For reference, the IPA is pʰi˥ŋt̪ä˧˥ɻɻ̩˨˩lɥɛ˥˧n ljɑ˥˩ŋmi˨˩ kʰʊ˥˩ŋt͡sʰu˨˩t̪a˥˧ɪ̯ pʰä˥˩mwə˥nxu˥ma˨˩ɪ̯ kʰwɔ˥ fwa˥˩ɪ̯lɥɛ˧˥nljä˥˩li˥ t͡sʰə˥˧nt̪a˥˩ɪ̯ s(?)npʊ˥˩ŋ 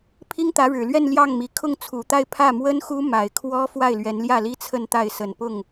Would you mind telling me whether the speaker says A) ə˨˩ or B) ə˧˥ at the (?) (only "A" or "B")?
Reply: A